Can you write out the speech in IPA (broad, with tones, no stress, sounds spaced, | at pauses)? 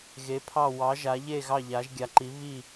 ɣ e˧˥ pʰ ɑ˥˧ w ɑ˧˥ ʒ a˧˥ ʎ e˥˧ ɣ ɑ˥˧ ʎ a˧˥ ʒ ɡʲ a˧˥ ǃ i˧˥ β i˥˧